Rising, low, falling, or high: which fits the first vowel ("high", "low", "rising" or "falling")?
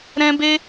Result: high